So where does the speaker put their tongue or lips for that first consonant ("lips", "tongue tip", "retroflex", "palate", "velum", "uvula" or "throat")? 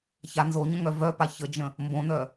palate